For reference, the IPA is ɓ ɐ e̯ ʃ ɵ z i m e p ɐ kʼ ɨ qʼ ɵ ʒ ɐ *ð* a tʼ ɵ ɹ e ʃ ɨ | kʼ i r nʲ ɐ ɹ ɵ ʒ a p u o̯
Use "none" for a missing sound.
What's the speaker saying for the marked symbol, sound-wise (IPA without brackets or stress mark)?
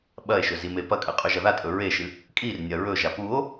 ð